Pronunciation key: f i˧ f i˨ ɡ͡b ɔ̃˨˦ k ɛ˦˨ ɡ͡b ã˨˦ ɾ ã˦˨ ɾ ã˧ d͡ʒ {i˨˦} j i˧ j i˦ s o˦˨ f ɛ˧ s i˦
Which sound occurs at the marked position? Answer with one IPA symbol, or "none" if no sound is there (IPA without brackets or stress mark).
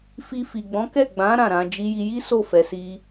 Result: i˦